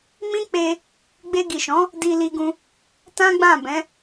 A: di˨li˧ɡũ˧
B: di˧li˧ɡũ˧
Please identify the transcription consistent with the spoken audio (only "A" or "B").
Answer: B